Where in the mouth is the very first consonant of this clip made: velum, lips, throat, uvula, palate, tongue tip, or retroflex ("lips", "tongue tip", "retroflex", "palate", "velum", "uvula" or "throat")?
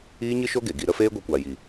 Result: palate